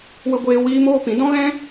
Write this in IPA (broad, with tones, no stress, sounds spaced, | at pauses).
w ə˧ ɡʷ eː˧ w iː˦ m oː˦ p ĩ˨˦ d ɔ̃˦ ɣ ɛ̃˦